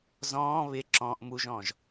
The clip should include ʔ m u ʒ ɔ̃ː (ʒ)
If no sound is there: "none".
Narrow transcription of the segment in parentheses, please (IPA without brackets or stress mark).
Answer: ʒ